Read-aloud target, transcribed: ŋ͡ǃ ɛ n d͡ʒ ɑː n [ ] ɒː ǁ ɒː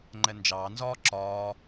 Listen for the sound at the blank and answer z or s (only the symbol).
z